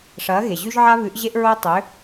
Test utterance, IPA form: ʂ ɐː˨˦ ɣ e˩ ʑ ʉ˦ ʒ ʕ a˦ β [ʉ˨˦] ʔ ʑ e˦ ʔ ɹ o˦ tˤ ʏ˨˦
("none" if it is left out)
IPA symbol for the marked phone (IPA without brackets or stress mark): ʉ˨˦